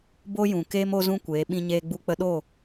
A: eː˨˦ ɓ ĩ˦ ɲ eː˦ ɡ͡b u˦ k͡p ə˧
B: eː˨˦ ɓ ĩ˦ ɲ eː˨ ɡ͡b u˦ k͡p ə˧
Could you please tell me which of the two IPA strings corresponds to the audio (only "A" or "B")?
A